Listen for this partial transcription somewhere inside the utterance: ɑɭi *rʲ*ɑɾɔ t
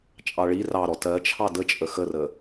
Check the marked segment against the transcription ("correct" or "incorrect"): incorrect